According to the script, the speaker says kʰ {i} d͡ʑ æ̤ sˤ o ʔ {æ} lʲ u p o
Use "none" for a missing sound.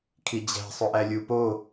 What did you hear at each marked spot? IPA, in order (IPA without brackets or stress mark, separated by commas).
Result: i, æ